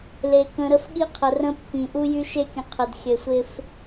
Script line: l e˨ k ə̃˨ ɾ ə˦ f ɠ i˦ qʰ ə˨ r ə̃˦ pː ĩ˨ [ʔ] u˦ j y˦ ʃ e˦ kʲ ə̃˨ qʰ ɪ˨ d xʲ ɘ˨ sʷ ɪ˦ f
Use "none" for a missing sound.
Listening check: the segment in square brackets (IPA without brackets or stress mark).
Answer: ʔ